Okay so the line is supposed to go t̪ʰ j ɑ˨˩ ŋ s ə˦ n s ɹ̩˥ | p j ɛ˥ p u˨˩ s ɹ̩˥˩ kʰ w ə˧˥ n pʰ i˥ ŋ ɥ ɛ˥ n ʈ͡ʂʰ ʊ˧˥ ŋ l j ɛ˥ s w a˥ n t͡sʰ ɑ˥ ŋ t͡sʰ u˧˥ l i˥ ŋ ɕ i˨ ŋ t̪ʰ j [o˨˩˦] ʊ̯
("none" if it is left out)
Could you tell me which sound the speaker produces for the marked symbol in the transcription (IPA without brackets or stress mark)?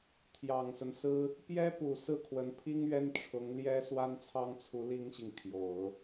o˨˩˦